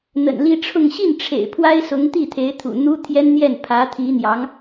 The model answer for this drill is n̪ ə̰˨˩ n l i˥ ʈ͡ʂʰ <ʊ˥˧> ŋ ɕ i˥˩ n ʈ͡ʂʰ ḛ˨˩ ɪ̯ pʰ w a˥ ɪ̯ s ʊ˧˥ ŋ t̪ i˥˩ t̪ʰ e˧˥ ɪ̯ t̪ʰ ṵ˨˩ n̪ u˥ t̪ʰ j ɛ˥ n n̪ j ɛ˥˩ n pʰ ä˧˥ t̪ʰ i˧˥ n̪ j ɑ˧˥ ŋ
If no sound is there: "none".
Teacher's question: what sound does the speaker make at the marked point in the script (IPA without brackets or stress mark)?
ʊ˥˧